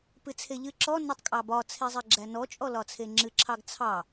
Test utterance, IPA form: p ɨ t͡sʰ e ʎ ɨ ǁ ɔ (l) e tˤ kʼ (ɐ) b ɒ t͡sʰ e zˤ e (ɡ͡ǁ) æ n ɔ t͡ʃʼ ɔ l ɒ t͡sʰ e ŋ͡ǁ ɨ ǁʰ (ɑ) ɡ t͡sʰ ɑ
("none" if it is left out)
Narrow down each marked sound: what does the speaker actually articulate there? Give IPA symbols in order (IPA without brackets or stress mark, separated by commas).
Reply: n, ɑ, ɡ͡ǁ, ɑ